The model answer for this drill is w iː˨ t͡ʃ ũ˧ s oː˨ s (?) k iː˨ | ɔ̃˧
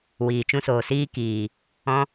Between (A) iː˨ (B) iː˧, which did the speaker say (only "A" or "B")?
B